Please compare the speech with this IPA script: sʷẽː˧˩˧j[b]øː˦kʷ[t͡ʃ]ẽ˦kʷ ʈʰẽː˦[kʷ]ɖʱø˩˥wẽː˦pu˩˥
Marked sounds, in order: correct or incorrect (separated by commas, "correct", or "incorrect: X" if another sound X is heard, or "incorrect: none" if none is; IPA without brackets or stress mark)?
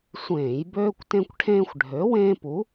correct, incorrect: t, incorrect: xʷ